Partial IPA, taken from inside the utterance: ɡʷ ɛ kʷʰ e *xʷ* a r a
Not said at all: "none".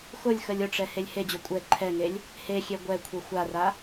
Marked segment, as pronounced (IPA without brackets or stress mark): xʷ